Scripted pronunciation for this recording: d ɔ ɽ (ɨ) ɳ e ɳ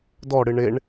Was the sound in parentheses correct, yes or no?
yes